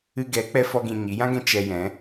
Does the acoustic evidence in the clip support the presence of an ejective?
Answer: no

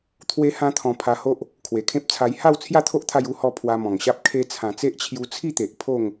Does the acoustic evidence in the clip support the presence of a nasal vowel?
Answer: yes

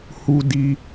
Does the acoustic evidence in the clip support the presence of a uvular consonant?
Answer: no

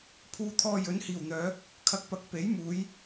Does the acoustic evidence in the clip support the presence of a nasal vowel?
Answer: no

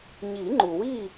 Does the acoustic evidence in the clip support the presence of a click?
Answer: yes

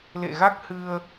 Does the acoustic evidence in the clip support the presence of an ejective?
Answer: no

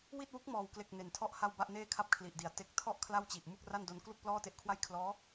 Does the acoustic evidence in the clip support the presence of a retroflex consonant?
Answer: no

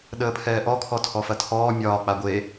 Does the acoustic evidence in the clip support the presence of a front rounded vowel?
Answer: no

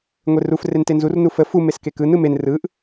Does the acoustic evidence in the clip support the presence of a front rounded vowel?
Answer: no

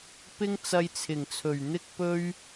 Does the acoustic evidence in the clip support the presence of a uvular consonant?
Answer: no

